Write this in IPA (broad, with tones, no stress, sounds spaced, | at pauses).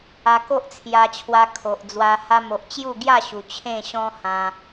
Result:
a˧ k o˦ ʔ t͡sʰ j a˧ t͡ɕʰ w a˧ kʰ o˨ ʔ d͡z w a˧ h a˧ m o˨ ʔ t͡ɕ j u˥˧ ɡ j a˥˧ ɕ u˨˩ t͡ɕʰ ẽ˥˧ ɕ ɔ̃˦ h ã˧